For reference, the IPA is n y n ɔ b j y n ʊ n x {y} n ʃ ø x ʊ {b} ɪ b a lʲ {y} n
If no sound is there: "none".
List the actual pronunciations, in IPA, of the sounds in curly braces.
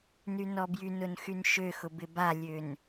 y, b, ø

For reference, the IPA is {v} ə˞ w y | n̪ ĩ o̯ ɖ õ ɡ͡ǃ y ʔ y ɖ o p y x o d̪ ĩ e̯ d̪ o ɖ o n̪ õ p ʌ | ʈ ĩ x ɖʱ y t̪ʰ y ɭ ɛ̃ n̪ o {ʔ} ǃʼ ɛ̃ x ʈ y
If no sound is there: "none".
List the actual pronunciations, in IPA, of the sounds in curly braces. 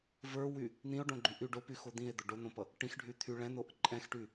v, ʔ

